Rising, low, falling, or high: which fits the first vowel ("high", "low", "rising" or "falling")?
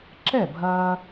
falling